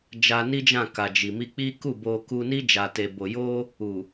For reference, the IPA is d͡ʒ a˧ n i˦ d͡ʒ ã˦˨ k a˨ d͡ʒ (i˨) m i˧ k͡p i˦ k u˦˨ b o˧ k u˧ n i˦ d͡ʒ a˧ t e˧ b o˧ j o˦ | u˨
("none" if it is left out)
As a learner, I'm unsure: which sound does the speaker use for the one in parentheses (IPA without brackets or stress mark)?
i˨